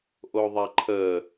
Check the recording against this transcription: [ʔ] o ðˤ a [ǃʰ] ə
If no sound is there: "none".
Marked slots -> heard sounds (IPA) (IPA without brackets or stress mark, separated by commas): ʔ, ǃʰ